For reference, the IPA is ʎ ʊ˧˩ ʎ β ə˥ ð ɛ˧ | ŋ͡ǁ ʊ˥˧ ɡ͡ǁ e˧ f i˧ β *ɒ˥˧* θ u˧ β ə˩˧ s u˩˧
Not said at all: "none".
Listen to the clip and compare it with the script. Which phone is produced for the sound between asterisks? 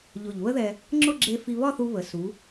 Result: ɒ˥˧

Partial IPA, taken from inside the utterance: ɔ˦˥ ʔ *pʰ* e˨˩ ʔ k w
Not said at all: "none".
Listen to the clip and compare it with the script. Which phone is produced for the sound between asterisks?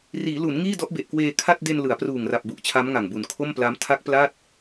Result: b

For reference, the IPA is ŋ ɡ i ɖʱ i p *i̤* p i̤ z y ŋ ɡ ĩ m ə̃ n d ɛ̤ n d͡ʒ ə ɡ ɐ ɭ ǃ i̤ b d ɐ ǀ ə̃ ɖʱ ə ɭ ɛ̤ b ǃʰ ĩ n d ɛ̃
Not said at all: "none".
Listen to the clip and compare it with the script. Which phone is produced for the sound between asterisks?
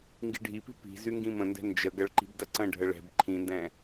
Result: i̤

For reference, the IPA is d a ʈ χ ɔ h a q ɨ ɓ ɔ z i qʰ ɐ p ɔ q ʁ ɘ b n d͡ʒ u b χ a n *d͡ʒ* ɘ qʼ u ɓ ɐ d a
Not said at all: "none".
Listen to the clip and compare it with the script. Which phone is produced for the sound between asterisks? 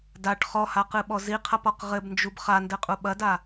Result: d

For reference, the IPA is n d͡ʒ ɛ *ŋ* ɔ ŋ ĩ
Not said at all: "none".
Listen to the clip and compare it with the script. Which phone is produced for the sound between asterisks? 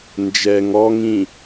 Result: ŋ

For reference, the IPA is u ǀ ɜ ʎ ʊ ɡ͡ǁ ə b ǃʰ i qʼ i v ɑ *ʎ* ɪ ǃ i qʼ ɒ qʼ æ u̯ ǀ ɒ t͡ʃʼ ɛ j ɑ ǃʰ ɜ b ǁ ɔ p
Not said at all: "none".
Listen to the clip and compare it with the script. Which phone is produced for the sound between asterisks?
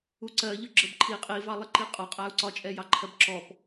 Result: lˠ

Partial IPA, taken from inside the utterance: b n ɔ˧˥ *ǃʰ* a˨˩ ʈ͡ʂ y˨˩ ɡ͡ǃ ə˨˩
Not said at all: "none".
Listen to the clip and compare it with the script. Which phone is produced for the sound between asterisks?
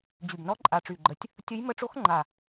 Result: ǃʼ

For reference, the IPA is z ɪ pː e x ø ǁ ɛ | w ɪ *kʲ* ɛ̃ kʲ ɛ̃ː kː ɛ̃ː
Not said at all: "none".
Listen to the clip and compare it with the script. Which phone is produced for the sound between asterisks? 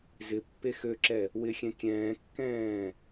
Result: xʲ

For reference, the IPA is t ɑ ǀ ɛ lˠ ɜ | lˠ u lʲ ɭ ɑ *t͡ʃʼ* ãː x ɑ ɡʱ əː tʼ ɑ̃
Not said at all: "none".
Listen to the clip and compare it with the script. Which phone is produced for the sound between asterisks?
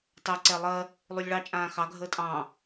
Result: t͡ʃʼ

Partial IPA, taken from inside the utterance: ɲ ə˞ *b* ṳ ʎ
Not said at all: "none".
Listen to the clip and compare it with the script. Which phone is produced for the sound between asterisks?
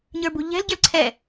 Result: b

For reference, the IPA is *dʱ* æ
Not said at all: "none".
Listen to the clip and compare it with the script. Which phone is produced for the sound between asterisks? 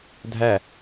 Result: dʱ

